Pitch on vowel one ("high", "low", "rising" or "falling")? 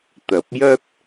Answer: rising